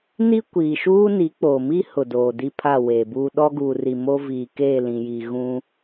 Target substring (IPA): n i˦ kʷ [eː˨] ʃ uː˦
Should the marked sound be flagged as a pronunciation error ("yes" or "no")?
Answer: yes